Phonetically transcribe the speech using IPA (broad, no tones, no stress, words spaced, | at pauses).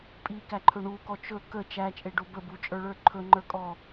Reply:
pʼikæǃʰɵ ɳukɔ t͡ʃɵ kə t͡ʃæt͡ʃʼeɖo bəbut͡ʃʼə˞ɭə˞ ǃʰɵŋ͡ǃə˞kʼɔ